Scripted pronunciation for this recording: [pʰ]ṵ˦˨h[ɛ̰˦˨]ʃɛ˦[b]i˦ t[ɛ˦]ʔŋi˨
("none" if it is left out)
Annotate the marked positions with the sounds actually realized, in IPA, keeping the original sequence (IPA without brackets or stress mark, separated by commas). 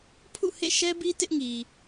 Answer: pʰ, ḛ˦˨, b, ɪ˦